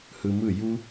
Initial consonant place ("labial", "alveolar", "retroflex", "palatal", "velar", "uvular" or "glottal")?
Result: glottal